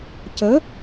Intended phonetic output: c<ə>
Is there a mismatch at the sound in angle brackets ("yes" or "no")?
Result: no